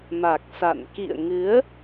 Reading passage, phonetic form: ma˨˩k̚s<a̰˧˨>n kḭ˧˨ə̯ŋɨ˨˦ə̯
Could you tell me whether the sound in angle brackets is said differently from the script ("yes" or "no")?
no